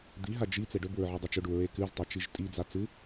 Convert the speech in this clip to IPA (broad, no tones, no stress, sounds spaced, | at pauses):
d̪ i ɦ a d͡ʒ i t͡s e ɖ ɵ b u ɹ ʕ ʉ dˤ ɵ t͡ʃ ɵ ɖ u ɹ e k ʉ z tˤ ɐ t͡ʃ i ʒ tʼ i d͡z a t͡s ɨ